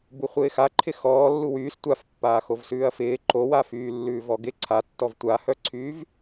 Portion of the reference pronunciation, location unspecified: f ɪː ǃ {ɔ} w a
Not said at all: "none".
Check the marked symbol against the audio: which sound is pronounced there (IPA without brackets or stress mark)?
o